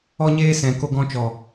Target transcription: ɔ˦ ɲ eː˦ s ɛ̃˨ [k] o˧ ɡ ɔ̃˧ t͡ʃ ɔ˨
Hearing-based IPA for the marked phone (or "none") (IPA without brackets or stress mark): k